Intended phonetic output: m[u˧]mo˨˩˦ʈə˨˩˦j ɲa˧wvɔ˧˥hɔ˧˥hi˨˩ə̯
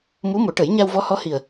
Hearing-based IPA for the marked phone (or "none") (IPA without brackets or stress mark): u˧˥